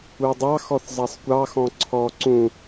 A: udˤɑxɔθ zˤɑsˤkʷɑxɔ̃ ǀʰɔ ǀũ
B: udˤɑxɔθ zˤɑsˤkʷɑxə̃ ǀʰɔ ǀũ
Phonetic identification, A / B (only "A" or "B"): A